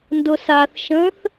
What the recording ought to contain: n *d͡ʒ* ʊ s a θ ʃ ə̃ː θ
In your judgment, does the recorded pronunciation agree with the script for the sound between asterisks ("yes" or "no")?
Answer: no